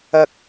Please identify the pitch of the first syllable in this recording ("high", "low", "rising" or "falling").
low